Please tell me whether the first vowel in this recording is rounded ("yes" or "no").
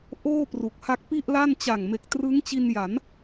yes